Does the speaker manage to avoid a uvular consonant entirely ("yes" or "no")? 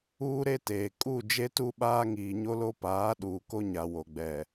yes